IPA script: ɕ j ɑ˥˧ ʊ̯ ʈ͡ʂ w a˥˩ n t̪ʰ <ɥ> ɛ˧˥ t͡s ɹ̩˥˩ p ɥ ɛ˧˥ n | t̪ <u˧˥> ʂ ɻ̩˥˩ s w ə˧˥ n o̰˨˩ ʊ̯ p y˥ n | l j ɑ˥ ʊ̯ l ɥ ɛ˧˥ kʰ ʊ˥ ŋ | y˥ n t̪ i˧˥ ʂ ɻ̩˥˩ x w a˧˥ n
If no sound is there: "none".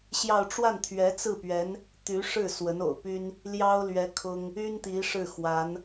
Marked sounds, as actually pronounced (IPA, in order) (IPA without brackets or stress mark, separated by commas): ɥ, y˧˥